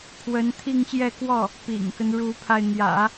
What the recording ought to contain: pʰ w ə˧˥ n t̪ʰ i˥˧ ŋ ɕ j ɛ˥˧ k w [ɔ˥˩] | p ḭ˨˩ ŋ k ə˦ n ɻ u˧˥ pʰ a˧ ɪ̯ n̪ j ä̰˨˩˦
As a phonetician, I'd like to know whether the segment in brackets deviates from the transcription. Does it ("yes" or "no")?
no